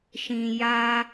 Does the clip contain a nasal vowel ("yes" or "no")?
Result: yes